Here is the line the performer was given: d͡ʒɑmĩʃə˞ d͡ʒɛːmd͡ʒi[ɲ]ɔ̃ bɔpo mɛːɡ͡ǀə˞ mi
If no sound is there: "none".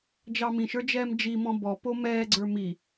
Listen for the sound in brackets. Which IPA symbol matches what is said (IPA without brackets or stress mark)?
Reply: m